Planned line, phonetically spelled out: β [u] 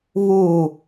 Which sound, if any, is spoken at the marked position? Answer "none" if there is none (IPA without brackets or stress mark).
u